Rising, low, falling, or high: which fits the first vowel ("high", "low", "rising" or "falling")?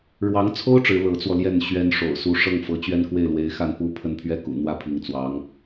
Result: rising